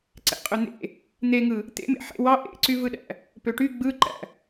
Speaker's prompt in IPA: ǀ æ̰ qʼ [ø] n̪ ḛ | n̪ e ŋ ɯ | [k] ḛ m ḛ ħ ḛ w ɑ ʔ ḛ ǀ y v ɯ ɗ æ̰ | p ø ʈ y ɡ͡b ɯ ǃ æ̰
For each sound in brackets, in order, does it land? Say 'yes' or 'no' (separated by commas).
yes, no